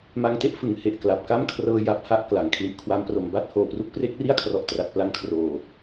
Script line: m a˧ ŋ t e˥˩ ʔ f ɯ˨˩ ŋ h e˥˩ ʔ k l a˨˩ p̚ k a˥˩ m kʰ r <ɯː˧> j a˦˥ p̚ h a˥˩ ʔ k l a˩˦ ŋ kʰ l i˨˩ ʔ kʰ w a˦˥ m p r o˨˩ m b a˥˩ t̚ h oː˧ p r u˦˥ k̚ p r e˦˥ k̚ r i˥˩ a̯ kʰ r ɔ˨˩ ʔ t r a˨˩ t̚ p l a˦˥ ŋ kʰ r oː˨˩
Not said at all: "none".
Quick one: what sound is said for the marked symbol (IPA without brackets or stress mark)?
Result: ɤː˧